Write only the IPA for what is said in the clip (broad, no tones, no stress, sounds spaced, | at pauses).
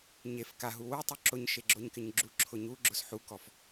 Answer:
ɲ e f k a ɦ u w u tˤ u ǁ ʊ ɲ ʃ e ɡ͡ǁ o ɲ k ɪ ɲ ɡ͡ǁ u ǁʰ ʊ ɲ u ɡ͡ǁ ʊ s ħ u k ɔ f